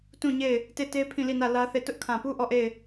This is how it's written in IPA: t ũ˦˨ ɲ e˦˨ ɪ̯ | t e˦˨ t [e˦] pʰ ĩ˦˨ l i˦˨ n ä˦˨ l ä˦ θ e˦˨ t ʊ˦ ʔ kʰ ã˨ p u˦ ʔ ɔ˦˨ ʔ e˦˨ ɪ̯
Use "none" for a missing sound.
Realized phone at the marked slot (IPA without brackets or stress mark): e˦